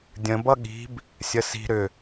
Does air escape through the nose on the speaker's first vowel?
yes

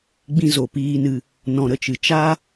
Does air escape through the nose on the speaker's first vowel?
yes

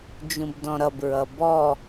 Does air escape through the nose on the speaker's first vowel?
yes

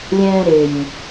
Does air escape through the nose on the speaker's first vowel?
yes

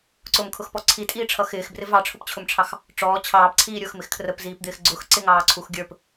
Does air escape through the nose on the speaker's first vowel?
no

